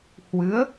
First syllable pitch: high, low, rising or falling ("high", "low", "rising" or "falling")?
rising